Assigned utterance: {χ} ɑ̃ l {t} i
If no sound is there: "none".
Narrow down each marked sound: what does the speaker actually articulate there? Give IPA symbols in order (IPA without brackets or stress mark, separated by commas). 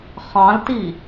χ, t